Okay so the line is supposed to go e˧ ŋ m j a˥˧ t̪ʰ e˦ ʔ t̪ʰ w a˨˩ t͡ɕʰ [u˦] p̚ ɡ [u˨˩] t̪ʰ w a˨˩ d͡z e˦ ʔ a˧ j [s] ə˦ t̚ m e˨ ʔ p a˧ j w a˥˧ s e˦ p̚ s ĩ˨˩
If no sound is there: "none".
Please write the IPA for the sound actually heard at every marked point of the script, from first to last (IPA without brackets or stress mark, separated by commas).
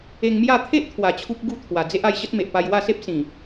u˦, u˥˧, ɕ